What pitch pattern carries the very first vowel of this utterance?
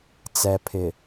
low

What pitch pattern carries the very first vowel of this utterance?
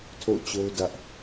falling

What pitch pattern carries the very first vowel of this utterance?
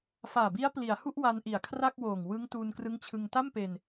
low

